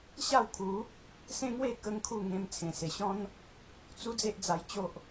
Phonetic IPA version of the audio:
ɕ a˥˧ w kʰ u˨˦ | s ẽ˦ ŋ w e˥˧ k ə˦ ŋ kʰ u˥˧ ŋ ẽ˧ m t͡sʰ ẽ˨˩ s e˨˩ ɕ ɔ̃˦ n | t͡s u˦ d͡z e˦ ʔ d͡z a˧ j t͡ɕ o˦ ʔ

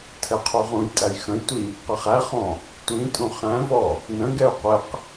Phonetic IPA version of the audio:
tʰ ɛ qʰ u ʁ ũ j tʼ æ j x ə̃ j tʷ i | q ə χ æ χ ɔ̃ | tʷ ĩ tʼ ũ χ æ̃ v ɔ | n ə̃ ɡ ɛ u̯ qʷ ɪ q

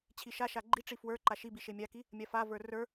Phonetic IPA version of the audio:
t͡ɕʰ i ʃ a ʃ a ɡ͡ǃ i ʈ͡ʂ i f w ə˞ ǃ a ʃ i b i ʃ e mʲ a k i | mʲ a f a v ə˞ r ə˞

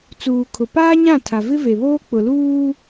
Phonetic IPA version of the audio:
t͡s uː˨ kʰ ʊ˨ p aː˦ ɲ ã˦˨ tʰ a˨ v ɪ˦ v e˨ β oː˦ k͡p ʊ˨ l uː˦

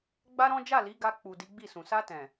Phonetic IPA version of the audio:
ɡ͡b a˦ ɾ ɔ̃˦ d͡ʒ a˦˨ l i˨˦ ɡ a˧ k͡p u˨ d i˨˦ ɡ͡b i˦˨ s ũ˨ s a˧ t ɛ̃˨

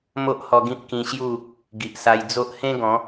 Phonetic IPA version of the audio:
m o˦ ʔ h ɔ˧ ɡ ĩ˦ p̚ k ĩ˧ ɕ j u˥˧ | ɡ i˨ ʔ s a˧ j d͡z o˦ ʔ h ẽ˦ ɡ ɔ̃˨˦

